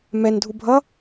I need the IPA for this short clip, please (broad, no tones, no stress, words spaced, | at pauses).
mɛn dʱubʱʌ